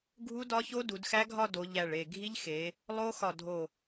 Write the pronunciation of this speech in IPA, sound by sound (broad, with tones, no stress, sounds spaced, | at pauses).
ɡʱ u˦˥ d ɒ˦˥ ç o˦˥ d u˨˦ d x æ˦˥ ɡʱ ɒ˥˧ d o˨˦ ʎ æ˧˩ ɭ e˧˩ ɡʱ i˦˥ ʎ x e˨˦ | lˠ o˦˥ x ɒ˧˩ dʱ o˧˩